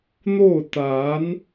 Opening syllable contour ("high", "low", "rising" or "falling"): falling